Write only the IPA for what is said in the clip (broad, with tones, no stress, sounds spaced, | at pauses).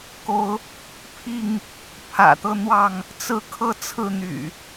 k o˨˦ ʊ̯ | pʰ i˥˨ ŋ | pʰ ä̰˨˩ t̪ ɤ˦ n̪ w ɑ˥˨ ŋ | t͡s ɹ̩˥˨ kʰ ɤ˥˨ t͡sʰ ɹ̩˥˨ n̪ y̰˨˩